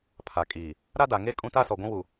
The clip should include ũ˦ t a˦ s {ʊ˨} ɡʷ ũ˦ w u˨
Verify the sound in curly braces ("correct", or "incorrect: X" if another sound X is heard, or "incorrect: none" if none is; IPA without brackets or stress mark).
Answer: incorrect: ɔ˨